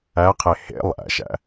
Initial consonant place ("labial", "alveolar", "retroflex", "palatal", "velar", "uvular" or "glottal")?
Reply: uvular